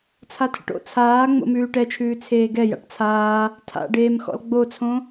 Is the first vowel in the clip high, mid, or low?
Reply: low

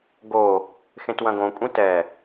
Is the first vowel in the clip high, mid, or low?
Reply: mid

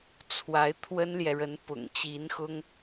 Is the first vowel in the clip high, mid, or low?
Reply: low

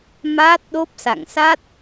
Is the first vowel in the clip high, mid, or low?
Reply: low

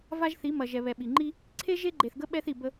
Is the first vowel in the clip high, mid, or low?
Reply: low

